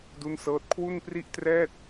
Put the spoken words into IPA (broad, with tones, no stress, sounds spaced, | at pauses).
d u˥˩ n s ɤː˥˩ t̚ kʰ w u˥˩ n p r i˥˩ ʔ t r ɛː˥˩ t̚